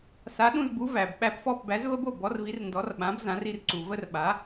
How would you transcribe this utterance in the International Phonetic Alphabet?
sa˩˥ɗũ˥˩zbu˩˥ væ˩bɓæ˥˩p fɔ˥˩pbæ˩˥zvə˥bo˥˩ bɔ˩˥rvi˩˥rndɔ˩˥r ɓã˩˥bzã˩˥r i˧rǀu˩və˥r ɓa˩˥

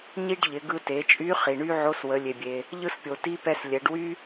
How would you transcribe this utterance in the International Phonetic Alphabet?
ɲi˥ɖʎɪ˩˧ ɡɯ˧te˩˧t͡ʃʼy˧˥ χi˩ɳy˥ ʕo˧˥swə˩˧ lʲe˩bʲe˩ | ʎɯ˥spʲo˩ ti˧˥pɛ˧s lʲɛ˩˧ɖ wy˥

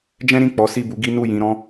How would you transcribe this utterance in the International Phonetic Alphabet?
d͡ʒɛ̃˦ɾĩ˦˨ k͡pɔ˨˦si˦˨bu˨˦ɡi˦ nu˦˨jĩ˧ɾɔ̃˦

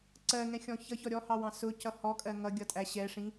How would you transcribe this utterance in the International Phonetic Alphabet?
ǀɜŋɛ̃xʲɔ̃ çʌçɔ ɾʲɔhɑwɑ̃ sʊcʌ hɔkʼɜ ŋʌɡʲʌtʼæ ɕɛʂĩ

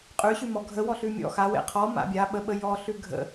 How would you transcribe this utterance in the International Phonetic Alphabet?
qʼʉɕʉmɔ ɡʱəwɔ ɬʉmʲɔ̰ xawḛ qʰɔ ma̰bʲa ɓəɓə jɔɬʉ ɡʱə̰

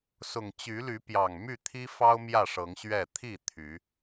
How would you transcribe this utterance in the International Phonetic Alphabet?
sʊ˨˩ŋ t͡ɕy˨˦ly˨˦pjɑ˨˩ŋ my˥˨t̪ʰi˦fɑ˦ʊ̯ mjä˥˨ʂɤ˨˦ŋɕɥɛ˥˨ t̪ʰi˥˨ t̪ʰy˨˦

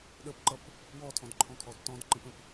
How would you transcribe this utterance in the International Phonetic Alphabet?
ɗəpǃʌp | wɔtʰɔ̃dǃʰɔ̃kʰɔd tɔ̃dǃə̃pə̃p

